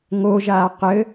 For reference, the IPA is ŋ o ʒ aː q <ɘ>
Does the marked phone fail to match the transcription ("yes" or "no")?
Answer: no